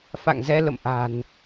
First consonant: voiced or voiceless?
voiceless